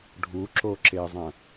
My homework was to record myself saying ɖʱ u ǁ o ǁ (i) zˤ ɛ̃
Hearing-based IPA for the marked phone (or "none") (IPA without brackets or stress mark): e